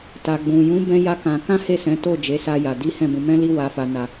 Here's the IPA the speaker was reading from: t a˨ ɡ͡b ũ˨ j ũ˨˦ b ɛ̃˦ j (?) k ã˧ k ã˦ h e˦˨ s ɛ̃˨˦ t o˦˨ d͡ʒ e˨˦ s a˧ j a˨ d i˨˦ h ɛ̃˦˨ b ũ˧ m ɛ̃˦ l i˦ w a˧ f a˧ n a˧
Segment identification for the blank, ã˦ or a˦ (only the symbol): a˦